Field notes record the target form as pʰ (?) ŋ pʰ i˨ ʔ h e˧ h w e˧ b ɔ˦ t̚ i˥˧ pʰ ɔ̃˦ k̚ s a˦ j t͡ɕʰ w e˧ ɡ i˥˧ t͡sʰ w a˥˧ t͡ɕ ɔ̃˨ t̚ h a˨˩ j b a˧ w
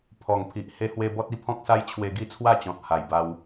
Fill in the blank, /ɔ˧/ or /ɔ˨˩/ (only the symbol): ɔ˨˩